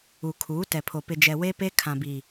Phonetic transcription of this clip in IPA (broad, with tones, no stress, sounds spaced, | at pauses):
u˨ kʰ uː˨˦ t ɛ˨ pʰ o˨ p ɪ˨ d͡ʒ ɛ˨ w e˦ p e˦ kʰ ã˨ b i˨